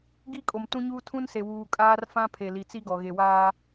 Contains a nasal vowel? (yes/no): yes